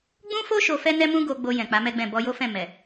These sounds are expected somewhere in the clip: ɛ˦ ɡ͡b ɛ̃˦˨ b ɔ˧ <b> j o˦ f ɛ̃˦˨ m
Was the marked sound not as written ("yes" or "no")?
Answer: yes